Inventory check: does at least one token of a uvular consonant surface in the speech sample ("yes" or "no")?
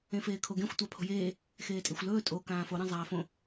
no